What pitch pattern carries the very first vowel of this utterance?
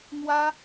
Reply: high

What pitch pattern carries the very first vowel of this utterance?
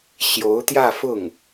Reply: rising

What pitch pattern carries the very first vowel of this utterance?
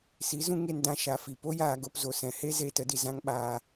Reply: rising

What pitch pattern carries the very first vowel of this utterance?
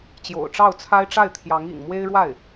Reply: low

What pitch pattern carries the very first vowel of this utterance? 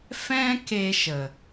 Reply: high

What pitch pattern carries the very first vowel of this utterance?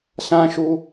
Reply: high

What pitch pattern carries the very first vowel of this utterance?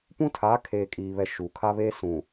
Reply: high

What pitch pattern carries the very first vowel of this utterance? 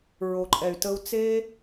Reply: low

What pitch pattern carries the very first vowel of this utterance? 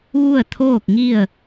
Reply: falling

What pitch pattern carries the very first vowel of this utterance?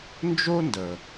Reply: high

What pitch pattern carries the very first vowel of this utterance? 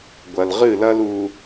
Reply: low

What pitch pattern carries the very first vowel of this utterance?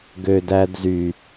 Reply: low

